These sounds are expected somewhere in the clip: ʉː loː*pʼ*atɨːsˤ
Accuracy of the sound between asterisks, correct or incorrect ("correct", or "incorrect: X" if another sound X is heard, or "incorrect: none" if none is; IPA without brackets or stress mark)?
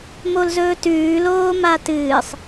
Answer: incorrect: m